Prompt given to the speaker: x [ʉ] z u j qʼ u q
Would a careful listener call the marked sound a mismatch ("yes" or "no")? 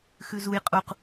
no